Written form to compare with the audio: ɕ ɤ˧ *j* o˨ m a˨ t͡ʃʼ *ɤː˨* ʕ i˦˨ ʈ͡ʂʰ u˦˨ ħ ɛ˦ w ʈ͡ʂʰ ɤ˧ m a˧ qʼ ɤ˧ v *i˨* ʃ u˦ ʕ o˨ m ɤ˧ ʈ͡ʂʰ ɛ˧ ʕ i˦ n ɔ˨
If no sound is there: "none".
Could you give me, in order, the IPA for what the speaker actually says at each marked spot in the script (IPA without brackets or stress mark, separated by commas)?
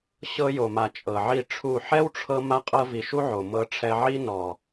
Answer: j, ɤ˨, i˨